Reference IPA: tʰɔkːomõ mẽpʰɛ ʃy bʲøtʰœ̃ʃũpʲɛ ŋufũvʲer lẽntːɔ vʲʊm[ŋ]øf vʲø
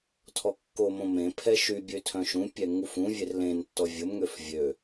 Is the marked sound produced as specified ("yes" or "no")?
yes